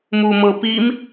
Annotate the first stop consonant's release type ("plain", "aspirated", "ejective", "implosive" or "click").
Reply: plain